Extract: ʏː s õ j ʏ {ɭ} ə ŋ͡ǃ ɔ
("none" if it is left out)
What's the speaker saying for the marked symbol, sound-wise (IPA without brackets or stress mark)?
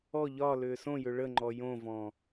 ɭ